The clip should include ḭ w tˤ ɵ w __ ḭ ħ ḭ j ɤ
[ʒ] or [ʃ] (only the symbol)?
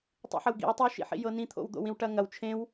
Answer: ʃ